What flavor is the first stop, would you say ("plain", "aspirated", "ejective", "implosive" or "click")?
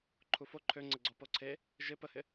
click